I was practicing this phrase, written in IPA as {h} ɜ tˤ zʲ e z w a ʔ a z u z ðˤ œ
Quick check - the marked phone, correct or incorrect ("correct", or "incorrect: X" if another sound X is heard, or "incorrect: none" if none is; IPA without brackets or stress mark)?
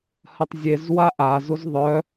correct